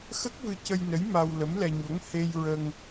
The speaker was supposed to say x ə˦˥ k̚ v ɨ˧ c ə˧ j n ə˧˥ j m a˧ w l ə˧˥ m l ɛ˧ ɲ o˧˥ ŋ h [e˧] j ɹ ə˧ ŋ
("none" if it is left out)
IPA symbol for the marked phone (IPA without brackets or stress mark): e˧